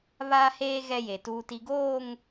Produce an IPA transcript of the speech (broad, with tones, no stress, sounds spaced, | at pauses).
β aː˦ h eː˦ ɣ ɛ˦ j e˨ t uː˨ t i˨ ɡ oː˦˨ ŋ